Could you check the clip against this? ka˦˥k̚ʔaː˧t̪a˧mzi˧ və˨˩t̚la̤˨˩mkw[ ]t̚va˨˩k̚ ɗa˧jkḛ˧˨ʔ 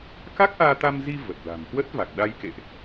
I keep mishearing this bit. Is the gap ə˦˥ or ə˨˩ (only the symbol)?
ə˦˥